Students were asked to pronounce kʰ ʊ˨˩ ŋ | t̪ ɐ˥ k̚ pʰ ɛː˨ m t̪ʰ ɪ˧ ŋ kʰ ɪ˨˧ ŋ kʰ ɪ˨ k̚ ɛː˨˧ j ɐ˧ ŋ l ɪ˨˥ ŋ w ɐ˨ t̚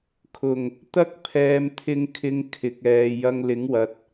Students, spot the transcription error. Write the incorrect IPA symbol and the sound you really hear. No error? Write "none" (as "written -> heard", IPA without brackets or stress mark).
none